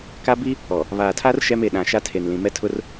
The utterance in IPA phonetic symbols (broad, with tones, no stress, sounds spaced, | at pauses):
k a˦ b i˦ | ɔ˨ | β aː˨ tʰ a˦ r ʃ ɛ˦ m e˨ ɗ ã˨ ʃ a˦ tʰ e˨ n l ĩ˨ m ɛ˦ tʰ ʊ˦ r